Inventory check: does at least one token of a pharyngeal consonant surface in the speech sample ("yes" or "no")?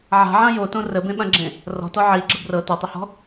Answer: yes